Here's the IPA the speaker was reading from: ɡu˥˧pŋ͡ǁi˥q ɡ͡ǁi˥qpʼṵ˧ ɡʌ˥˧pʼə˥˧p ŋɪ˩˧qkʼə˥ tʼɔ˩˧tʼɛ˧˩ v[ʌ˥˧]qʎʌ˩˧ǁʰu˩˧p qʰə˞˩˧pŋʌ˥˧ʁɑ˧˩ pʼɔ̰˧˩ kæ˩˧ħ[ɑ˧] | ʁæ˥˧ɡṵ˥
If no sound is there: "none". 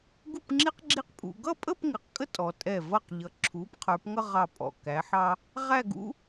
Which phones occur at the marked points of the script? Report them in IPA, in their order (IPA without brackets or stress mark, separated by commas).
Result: ʌ˧˩, ɑ˧